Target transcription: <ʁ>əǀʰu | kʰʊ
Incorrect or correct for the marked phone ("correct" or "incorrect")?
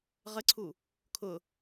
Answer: correct